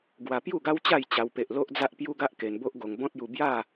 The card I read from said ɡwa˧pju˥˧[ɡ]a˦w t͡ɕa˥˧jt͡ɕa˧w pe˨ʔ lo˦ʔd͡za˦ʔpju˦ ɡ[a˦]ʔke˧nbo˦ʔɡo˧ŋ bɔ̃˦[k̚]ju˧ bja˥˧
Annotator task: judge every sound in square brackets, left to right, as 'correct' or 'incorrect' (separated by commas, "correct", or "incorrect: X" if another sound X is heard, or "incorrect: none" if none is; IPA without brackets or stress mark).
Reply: correct, correct, incorrect: t̚